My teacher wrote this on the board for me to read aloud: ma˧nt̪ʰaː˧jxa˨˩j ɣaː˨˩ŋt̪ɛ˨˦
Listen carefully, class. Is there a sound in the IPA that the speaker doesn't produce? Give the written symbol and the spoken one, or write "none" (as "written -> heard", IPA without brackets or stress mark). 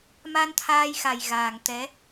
none